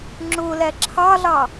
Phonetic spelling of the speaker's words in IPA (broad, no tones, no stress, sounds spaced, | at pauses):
ŋ͡ǁ ʊ l æ ǁʰ ɑ ɮ ɑ